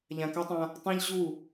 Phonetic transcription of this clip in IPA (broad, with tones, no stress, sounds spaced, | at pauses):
ʎ ã˨ k a˦ tˤ ã˦ | tˤ ã˦ ʎ ʑ u˦˨